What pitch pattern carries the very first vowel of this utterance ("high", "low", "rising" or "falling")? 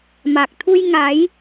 low